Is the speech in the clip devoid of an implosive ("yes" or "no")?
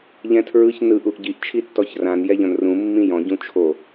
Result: yes